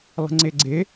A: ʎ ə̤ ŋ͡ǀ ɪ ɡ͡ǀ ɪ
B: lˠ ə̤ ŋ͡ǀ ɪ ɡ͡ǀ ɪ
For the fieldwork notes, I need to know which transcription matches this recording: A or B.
B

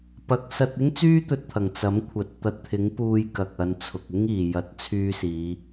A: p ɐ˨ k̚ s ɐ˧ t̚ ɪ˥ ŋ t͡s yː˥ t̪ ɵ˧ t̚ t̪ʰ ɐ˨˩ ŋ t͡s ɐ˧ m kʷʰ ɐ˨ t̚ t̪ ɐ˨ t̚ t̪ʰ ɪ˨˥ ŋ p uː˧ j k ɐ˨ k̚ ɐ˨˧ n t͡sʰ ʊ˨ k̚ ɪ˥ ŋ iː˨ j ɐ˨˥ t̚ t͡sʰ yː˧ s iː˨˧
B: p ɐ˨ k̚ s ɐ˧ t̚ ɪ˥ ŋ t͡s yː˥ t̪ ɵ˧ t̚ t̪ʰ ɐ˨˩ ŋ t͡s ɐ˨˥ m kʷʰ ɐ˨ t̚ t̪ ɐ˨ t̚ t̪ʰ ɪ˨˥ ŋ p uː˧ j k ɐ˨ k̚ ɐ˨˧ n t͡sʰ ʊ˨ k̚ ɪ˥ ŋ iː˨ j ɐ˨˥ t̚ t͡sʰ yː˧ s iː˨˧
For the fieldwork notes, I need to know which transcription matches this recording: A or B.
B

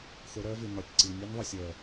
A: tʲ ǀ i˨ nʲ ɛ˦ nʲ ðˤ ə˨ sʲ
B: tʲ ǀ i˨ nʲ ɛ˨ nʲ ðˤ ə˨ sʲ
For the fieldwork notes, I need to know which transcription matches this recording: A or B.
A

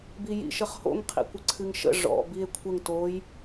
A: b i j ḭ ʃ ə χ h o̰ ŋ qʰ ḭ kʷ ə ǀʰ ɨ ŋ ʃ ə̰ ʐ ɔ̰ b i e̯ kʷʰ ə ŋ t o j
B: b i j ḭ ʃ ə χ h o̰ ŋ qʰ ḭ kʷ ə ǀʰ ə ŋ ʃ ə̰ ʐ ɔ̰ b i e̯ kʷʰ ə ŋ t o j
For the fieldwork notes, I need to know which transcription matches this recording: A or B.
A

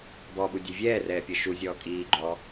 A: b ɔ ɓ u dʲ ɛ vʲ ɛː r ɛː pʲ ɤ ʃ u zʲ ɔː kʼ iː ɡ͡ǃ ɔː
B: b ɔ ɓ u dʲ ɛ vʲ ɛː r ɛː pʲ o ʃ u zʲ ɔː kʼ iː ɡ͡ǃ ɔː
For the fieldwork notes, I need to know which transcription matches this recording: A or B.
A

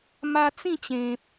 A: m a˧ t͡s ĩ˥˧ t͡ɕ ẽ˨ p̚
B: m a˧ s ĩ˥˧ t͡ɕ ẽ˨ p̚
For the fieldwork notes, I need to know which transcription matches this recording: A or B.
A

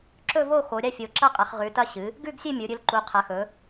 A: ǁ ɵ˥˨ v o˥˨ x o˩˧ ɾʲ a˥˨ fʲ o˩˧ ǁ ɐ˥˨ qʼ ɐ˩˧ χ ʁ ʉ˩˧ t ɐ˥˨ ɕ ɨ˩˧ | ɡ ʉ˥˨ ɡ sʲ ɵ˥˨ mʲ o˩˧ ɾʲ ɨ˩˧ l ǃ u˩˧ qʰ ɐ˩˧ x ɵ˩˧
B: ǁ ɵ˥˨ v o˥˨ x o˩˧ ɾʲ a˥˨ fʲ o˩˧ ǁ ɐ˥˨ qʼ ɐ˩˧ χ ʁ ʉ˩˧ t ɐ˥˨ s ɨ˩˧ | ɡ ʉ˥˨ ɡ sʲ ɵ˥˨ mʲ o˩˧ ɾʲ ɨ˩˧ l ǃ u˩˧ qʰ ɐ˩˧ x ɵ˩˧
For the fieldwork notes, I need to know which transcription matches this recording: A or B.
A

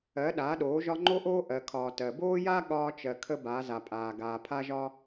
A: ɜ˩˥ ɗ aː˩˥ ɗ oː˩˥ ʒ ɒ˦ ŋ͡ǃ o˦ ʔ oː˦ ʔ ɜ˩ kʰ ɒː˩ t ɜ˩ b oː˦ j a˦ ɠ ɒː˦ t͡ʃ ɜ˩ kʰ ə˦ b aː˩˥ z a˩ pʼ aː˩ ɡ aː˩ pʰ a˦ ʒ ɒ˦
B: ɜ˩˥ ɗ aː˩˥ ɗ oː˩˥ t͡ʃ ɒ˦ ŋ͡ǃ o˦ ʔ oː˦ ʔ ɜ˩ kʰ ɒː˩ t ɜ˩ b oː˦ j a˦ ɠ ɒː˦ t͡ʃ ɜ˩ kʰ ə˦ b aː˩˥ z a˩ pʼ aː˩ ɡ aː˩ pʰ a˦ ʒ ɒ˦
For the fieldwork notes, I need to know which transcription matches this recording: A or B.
A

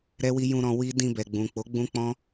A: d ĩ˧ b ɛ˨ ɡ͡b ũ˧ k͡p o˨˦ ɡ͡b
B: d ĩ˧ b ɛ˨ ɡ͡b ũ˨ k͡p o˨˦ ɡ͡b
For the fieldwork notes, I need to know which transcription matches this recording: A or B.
B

